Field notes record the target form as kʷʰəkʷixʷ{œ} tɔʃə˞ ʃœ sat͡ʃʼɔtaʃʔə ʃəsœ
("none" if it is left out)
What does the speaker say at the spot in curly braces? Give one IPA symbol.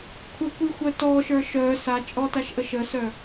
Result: œ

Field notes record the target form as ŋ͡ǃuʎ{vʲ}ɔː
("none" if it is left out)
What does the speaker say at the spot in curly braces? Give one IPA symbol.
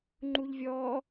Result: vʲ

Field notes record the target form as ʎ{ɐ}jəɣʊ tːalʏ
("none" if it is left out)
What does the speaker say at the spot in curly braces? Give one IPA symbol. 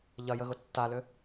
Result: ɐ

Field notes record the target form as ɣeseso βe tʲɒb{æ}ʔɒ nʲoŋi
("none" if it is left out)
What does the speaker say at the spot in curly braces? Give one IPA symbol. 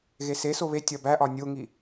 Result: æ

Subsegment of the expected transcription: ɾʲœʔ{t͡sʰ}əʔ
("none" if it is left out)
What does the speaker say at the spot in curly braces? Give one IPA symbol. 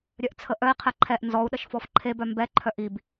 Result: t͡sʰ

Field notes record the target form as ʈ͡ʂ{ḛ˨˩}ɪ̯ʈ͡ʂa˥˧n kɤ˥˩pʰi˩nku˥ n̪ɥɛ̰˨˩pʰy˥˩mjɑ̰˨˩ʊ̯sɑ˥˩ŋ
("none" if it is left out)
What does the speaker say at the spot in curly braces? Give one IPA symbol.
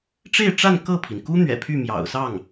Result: e˥˧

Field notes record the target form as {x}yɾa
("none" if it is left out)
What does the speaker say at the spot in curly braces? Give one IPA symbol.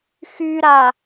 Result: x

